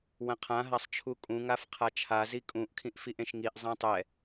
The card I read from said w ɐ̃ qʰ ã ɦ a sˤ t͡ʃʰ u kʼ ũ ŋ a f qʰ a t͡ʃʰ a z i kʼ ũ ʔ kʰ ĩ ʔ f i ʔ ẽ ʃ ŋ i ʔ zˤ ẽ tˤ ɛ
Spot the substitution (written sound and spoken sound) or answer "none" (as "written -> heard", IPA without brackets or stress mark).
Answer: none